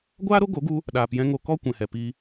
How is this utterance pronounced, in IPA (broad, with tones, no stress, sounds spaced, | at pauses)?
ɡʷ aː˦ ɾ o˦ ɡ o˨˦ ɡ u˧ | ɗ aː˨ p j ɛ̃˧ ŋ o˧ k ɔ˦ kʷ ɛ̃˨ h ɛ˨ p i˧